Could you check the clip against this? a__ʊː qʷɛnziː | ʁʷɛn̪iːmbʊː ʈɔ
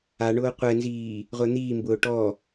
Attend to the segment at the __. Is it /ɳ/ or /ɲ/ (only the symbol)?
ɳ